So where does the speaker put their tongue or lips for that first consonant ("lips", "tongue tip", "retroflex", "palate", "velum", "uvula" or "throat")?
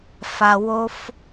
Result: lips